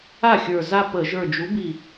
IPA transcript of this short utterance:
a˥˩ xʲ ə˞˧˩ z a˥˧ p ə˧˩˧ ʒ ə˞˧˩ d͡ʒ u˨˥ b i˧˩

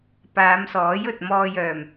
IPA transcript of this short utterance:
p aː˨˧ m s ɔː˨˥ j ɵ˨ t̚ m ɔː˧ j œː˨˩ m

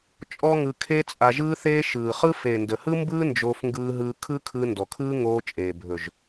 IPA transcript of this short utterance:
t͡ʃʼ ɔ˦ ŋ ɯ˧ kʰ e˦ t͡sʼ a˧ ʒ ɯː˦ θ eː˦ ʃ ɯː˨ χ ɯ˦ f e˨ n d ə˨ h ɯ˦ m b ɯː˦ n d͡ʒ oː˧ f ŋ ɡ ɯː˧ ɦ ɯː˧ kʰ ɯ˦ kʰ ɯ˧ n d ɔ˨ kʰ ɯː˦ ŋ oː˧ t͡ʃʼ eː˨ bʱ ɵ˨ ʒ

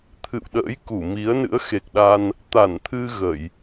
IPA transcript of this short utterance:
t̪ʰ ɨ̰˧˨ w ɗ ə̰ː˧˥ j k u˧˩ m i˨˦ ə̯ n ɨ̰˧˥ ə̯ x e˨˩ k̚ ɗ a˧ n | t̪ a˧˩ n t̪ʰ ɨ˧ ɣ ə˧˩˨ j

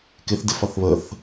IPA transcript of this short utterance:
k ɪ θ d ɪ f ʌ θ β ə θ

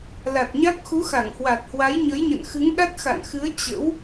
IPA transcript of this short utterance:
l a˨˩ t̚ ɲ a˦˥ k̚ x u˨˦ x a˧˩ ŋ h w a˨˩ t̚ h w a˨˦ j ɲ ə˨˦ j ɲ ə̰˧˨ n x ɨ˨˦ ŋ ɗ a˦˥ t̚ x a̰˧˨ n x ɨ˨˦ ə̯ t͡ɕ ə̰˧˥ w

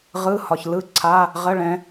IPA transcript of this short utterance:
ʁ ɯ˧˥˧ h ɒ˨ ç l ɯ˦˥ ǀʰ a˧˥˧ | ʁ ə˧˥˧ ɭ ɛ̃˨˦

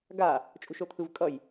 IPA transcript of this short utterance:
ɡ a | t͡ʃʼ ṳ ʃ o t̪ʰ ɯ v kʼ ʌ j

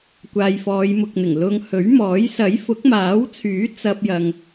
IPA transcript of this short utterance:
kʷ aː˨ j f ɔː˨˧ j m ʊ˨ k̚ n̪ ɪ˨˩ ŋ l ʊ˧ ŋ h ɵ˨˥ ɥ m ɔː˨˥ j s ɐ˨˥ j f ʊ˨˥ k̚ m aː˨˥ w t͡sʰ yː˨˥ t͡s ɐ˥ p̚ j ɐ˧ ŋ

